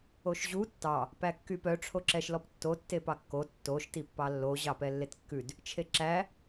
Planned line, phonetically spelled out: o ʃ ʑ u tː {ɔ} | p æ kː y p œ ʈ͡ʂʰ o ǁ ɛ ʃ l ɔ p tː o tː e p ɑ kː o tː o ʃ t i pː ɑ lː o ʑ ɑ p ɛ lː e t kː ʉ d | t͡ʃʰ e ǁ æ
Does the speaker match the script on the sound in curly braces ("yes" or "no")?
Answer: no